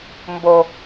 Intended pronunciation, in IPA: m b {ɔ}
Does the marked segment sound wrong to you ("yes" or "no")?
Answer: yes